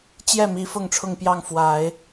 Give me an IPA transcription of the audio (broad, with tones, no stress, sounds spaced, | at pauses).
t͡ɕ j ɛ˥˩ m i˧˥ f ʊ˥˧ ŋ ʈ͡ʂʰ ʊ˥˧ ŋ p j ɑ˥˩ ŋ f w a˨˩˦ ɪ̯